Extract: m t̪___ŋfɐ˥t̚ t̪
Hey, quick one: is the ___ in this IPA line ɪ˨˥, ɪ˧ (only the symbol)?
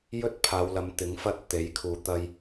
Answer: ɪ˨˥